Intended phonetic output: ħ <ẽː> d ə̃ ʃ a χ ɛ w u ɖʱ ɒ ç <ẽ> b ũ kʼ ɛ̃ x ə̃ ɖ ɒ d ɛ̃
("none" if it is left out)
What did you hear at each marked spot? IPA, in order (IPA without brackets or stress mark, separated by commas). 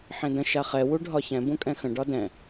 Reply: ẽ, ɛ̃